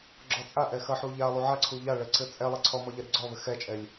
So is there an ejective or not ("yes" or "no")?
yes